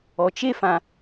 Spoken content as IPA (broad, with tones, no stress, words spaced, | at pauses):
ɔ˨t͡ʃe˦fã˨